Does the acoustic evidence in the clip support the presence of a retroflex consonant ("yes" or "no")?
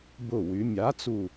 no